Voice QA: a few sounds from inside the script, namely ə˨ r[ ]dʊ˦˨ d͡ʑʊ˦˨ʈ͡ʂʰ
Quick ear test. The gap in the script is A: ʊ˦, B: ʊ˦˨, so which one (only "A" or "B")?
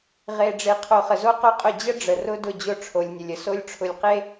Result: A